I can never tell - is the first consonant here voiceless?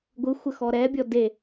no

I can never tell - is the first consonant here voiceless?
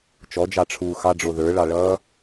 yes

